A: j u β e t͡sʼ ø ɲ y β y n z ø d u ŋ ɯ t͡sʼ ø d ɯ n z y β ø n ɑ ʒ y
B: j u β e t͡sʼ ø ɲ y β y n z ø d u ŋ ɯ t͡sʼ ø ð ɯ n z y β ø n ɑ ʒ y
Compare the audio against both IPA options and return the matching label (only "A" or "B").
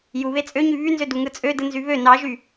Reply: A